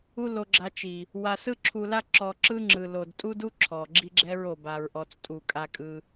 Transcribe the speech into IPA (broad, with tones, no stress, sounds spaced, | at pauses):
u˦ l o˧ ɡ͡ǁ a˧ t͡ʃ i˨ | w a˧ s ɯ˦ ǁʰ u˧ l a˦ ǁ ɔ˧ ǁ ɯ˦ ŋ͡ǁ ɯ˨ l o˨ d tʼ u˦ d u˦ ǁʰ ɔ˨ ɡ͡ǁ i˦ ɡ͡ǁ ɛ˦ ɹ o˨ b a˨ ɹ ʔ ɔ˨ t͡s tʼ u˨ kʼ a˧ kʼ ɯ˧